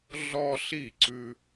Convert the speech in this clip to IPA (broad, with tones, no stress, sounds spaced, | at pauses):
ɮ ɔ˦ ɬ i˥˩ ǀ ʉ˦